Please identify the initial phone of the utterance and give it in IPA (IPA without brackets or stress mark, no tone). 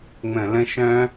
ŋ͡m